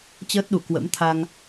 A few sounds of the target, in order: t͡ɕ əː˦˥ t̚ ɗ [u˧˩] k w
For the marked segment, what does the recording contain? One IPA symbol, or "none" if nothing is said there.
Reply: u˧˩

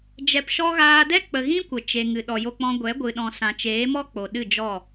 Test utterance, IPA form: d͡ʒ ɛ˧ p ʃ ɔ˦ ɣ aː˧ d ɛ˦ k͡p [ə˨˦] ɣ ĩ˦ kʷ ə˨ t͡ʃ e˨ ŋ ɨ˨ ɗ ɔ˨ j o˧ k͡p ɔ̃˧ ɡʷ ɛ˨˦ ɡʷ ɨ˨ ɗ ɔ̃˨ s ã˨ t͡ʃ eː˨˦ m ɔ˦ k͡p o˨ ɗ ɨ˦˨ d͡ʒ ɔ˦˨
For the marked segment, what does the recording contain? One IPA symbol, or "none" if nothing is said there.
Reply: ə˨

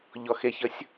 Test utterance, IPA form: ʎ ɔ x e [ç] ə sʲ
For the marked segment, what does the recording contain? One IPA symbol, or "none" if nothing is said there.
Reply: ç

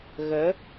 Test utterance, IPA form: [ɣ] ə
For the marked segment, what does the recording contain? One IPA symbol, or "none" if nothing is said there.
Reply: ɣ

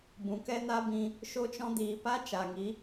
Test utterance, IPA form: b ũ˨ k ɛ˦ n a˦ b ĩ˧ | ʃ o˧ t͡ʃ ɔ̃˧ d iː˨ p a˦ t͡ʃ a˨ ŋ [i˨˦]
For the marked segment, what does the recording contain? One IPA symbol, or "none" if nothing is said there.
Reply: i˨˦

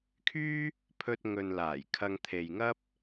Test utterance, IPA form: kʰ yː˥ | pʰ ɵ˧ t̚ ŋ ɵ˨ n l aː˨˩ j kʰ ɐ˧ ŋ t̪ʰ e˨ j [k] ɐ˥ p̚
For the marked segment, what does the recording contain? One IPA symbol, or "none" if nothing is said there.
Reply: ŋ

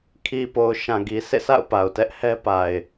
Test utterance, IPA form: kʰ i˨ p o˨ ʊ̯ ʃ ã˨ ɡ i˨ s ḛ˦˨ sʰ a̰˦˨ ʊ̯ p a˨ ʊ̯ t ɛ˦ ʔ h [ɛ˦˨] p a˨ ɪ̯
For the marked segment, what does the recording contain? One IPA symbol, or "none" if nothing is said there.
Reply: ɛ˦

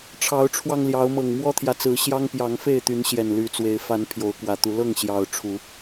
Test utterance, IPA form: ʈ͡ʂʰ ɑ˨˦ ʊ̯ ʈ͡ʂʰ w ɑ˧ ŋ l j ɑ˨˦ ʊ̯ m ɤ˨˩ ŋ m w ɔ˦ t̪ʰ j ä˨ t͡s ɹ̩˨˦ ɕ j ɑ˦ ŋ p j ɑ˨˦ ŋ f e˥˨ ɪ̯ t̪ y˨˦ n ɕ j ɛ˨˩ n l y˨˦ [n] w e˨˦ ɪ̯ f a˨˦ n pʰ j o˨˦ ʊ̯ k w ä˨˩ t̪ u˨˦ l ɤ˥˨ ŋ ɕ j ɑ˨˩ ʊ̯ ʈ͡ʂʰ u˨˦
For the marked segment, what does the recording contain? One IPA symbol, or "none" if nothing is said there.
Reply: t͡s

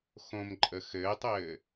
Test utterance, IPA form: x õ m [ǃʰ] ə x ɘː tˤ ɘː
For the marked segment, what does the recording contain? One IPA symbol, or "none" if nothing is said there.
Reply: ǃʼ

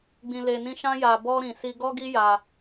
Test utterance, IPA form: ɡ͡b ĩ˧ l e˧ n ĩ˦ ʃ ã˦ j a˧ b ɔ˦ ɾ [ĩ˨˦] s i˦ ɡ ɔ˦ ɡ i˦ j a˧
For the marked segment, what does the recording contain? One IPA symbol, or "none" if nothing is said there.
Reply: ĩ˧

